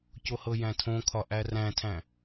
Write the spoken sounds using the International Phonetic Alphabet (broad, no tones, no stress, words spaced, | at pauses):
cohɤjæ̃tʰõ kʰɒʔæræ̃tʰæ̃